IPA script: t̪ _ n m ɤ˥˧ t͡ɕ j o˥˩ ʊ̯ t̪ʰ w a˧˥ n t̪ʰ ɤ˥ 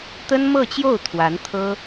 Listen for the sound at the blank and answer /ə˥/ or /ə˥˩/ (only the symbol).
ə˥